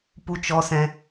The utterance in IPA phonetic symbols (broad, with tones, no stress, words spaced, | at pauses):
pu˧t͡ʃɔ˧sɛ̃˧